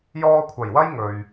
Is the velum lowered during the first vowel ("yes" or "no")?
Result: no